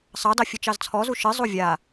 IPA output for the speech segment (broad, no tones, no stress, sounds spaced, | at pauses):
sˤ ɑ d ɑ fʲ ɨ t͡ʃ ɑ z t͡sʰ ɔ z u ʃ ɨ zˤ u vʲ a